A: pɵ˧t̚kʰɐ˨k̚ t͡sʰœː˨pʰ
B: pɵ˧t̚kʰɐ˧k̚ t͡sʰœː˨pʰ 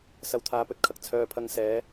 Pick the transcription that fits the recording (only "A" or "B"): A